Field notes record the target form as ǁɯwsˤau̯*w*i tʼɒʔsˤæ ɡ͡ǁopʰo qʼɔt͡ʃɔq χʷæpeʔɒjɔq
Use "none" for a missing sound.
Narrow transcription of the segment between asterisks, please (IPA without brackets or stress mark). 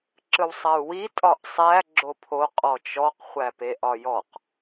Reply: w